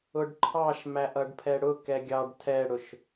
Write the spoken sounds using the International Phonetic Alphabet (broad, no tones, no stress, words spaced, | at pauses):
ʊɖǃʰɑʃ mæʔʌɖpʰɛɽʊ kɛɡʲɑɖ tʰɛɽʊʃ